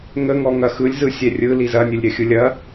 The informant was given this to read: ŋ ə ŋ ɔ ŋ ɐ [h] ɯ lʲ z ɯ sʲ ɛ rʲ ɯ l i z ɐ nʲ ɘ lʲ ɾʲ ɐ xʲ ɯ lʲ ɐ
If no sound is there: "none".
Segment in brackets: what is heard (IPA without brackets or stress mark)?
x